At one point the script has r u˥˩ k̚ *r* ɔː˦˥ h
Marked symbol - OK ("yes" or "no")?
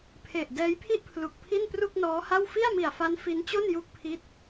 no